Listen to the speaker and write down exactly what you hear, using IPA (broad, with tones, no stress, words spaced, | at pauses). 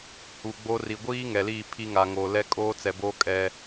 hu˨ɡ͡bo˦ ri˨ɡʷiː˦ŋɛ˨liː˦˨ pʰi˦ ŋa˨ŋoː˨ lɛ˦kʼoː˦t͡sɛ˨boː˦ kʼɛ˦